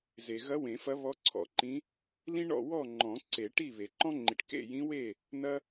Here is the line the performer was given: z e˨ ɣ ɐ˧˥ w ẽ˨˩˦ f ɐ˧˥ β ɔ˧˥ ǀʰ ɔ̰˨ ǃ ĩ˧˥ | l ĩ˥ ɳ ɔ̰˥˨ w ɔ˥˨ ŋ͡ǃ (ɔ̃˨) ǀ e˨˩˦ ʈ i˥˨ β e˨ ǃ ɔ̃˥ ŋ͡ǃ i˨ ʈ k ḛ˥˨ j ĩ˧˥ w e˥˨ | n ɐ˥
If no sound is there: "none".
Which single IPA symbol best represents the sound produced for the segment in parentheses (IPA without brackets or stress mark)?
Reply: ɔ̃˨˩˦